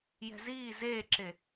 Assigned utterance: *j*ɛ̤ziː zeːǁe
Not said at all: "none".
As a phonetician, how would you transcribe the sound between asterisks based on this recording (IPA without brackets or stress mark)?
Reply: j